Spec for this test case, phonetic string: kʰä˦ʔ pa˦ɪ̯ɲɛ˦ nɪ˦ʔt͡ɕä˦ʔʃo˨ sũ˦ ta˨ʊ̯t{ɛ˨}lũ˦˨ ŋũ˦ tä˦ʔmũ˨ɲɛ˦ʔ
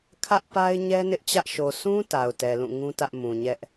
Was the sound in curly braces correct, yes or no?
yes